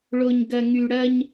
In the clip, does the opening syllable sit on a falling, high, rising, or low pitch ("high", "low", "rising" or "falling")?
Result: low